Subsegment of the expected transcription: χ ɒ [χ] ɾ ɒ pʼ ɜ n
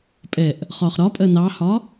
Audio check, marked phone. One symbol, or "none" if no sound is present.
χ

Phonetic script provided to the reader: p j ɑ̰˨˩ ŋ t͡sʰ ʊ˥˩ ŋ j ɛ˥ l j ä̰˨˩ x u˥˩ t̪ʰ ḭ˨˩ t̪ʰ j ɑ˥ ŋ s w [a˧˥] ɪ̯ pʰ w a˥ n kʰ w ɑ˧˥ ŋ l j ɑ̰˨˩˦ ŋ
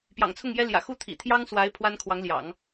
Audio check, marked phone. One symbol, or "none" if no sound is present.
a˧˥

